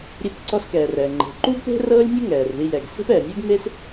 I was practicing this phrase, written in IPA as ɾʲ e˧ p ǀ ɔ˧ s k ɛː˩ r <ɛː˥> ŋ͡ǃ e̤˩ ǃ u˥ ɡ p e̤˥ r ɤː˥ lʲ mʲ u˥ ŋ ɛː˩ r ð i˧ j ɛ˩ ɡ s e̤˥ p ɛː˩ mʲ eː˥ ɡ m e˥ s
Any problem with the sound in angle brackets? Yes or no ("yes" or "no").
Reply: yes